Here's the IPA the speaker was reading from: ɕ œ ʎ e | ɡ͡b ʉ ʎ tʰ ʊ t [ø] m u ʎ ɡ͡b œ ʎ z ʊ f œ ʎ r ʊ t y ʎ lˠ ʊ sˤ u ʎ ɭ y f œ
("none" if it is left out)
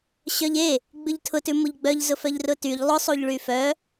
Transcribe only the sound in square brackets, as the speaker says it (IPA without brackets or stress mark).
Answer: ʉ